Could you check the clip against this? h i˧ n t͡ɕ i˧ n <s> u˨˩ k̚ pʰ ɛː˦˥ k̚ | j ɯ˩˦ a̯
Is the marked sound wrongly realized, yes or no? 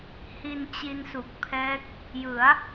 no